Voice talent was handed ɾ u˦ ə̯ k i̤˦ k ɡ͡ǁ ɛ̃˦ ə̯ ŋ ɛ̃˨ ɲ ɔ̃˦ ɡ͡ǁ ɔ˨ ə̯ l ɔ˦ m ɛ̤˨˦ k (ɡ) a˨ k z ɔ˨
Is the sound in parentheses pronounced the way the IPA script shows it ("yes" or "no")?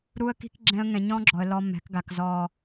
yes